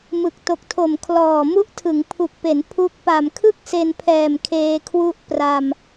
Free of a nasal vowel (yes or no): yes